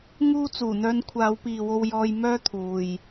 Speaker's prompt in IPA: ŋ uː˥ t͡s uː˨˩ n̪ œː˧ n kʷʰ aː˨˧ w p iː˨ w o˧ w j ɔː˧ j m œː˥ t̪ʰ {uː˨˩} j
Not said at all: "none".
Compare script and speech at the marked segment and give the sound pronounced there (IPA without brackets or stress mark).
uː˨